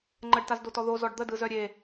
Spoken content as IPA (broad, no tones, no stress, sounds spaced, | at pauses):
ŋ͡ǃ ə ɖ t a z d o t ɔ ð o z ɔ ɖ d̪ ə d ɯ z œ ɾʲ e